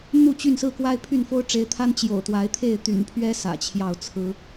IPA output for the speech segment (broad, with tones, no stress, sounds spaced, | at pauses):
n̪ u˥˨ t͡ɕ y˥˨ n s ɹ̩˥˨ k w a˦ ɪ̯ pʰ y˥˨ n f o˦ ʊ̯ ʈ͡ʂ e˨˦ ɪ̯ t̪ʰ a˦ n t͡ɕ j o̰˨˩ ʊ̯ t̪ w a˨˦ ɪ̯ t̪ʰ e˥˨ ɪ̯ t̪ y̰˨˩ n pʰ ɥ ɛ˦ s ä̰˨˩ t͡ɕʰ j ɑ˥˨ ʊ̯ t͡sʰ ɹ̩˦